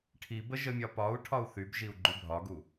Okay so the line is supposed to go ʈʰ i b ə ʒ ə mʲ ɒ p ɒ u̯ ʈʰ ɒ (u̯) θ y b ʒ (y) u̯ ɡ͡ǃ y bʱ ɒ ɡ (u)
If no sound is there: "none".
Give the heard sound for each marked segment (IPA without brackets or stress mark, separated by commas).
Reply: u̯, i, u